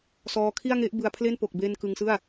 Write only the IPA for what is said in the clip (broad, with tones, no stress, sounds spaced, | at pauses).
s ɔː˧ kʰ i˥˩ a̯ ŋ e˦˥ ʔ b ɯ˧ a̯ pʰ l e˥˩ n p o˨˩ k̚ b e˧ n k ɯ˧ ŋ s ɯ˥˩ a̯